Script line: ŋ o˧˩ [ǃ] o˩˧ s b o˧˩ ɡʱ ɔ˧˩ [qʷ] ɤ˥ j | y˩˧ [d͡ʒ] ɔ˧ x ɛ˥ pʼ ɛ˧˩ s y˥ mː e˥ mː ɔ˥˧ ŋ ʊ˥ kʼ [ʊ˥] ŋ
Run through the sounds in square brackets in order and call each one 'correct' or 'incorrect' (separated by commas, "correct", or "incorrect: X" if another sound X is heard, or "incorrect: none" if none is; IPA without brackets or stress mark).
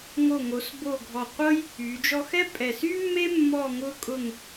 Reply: incorrect: ŋ, correct, correct, incorrect: ʊ˥˧